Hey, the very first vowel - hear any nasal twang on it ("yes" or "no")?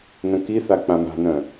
yes